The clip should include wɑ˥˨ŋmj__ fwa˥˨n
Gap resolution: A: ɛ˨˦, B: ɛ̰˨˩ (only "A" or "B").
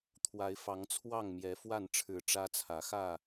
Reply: A